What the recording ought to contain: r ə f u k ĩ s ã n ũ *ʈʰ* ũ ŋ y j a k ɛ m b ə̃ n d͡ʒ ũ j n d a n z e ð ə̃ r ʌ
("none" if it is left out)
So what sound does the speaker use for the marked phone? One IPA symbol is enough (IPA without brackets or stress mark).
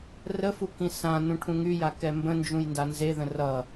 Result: ʈʰ